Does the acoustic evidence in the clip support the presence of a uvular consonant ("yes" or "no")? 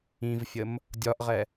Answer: yes